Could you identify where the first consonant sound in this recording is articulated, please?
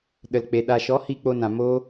alveolar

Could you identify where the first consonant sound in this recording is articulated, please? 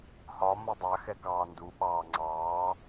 glottal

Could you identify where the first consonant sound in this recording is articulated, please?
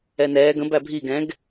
alveolar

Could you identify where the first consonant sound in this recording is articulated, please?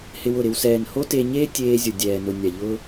glottal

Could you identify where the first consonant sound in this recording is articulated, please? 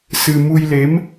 alveolar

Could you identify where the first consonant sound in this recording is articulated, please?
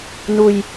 alveolar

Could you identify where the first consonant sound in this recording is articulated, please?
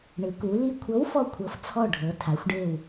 retroflex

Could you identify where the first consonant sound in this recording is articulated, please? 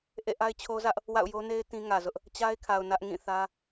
glottal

